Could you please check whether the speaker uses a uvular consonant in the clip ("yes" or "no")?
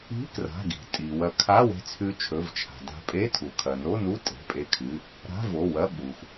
no